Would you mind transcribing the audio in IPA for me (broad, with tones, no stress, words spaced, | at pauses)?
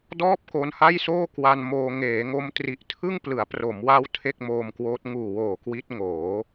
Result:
dɔː˥˩p̚ko˧nha˥˩jsoː˥˩ kwa˧nmoː˧ ŋeː˩˦ŋo˦˥m tri˨˩ʔtʰɯ˥˩ŋ plɯ˩˦a̯pro˩˦mwa˦˥w tʰe˥˩k̚moː˧mkwoː˦˥t̚ ŋuː˨˩woː˨˩ kwi˦˥t̚ ŋoː˩˦